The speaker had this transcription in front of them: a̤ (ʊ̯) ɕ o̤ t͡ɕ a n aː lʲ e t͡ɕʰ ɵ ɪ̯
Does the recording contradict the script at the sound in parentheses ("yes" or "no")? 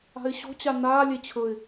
yes